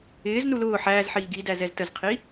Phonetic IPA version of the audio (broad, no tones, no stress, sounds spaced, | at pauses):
ɪː z n u l ʊː ħ æː z ħ iː ɡ i d æ z ɛ z t ə z qʰ i